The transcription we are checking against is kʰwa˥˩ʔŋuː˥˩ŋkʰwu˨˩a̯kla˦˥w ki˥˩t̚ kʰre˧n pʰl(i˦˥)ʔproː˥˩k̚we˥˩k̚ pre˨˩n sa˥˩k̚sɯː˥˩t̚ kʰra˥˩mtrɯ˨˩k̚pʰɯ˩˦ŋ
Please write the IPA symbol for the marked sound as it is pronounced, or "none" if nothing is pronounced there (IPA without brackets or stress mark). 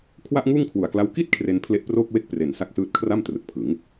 e˦˥